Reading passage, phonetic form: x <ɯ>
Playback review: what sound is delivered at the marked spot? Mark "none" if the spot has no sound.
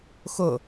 ʊ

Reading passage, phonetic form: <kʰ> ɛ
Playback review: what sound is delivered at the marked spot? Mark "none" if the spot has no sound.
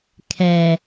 kʰ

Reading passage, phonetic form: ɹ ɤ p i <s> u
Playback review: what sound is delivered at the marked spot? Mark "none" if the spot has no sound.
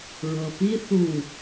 θ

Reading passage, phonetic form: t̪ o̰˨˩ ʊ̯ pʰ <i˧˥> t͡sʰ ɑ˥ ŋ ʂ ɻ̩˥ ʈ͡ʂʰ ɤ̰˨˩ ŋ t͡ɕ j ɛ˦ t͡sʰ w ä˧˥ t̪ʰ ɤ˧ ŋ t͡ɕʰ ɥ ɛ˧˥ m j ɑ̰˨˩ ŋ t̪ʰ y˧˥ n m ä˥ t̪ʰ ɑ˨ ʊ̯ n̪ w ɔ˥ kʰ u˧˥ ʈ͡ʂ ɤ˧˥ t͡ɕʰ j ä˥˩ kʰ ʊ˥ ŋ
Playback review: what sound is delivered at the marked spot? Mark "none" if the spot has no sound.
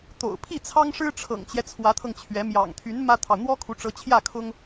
i˥˩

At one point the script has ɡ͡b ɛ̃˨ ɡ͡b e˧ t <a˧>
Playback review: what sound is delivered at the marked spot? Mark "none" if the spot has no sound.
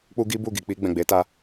a˧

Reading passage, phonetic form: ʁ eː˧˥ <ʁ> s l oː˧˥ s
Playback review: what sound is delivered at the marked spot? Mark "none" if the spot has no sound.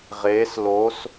none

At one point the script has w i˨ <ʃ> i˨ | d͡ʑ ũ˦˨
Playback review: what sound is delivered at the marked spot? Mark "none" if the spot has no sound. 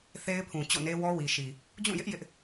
ʃ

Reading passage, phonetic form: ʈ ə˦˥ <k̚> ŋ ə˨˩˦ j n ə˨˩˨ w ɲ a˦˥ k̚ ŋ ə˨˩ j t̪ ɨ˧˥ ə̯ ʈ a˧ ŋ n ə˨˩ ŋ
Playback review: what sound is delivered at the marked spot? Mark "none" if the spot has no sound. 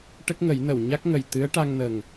k̚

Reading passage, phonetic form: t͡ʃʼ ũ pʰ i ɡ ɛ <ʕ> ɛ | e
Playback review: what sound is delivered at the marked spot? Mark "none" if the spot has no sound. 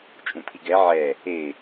ʕ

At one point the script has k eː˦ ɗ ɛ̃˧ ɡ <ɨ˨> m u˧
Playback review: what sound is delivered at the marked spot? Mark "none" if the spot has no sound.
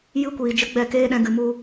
ɨ˨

